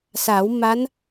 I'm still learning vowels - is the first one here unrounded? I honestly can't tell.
yes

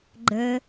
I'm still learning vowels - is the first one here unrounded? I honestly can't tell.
yes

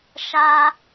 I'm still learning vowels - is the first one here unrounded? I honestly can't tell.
yes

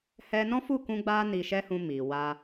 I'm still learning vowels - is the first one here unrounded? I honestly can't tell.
yes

